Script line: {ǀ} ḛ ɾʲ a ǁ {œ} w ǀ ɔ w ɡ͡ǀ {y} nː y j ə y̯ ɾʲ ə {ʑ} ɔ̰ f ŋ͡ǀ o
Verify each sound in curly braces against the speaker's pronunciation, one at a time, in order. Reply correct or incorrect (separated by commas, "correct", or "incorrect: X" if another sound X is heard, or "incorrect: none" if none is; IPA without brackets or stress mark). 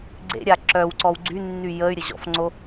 incorrect: ɡ͡ǀ, correct, correct, correct